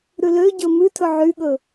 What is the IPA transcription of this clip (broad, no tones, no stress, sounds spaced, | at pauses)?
ɾ ʉ l ø ɟ ɵ m ʉ tʰ ɵ ʕ y ɠ ɵ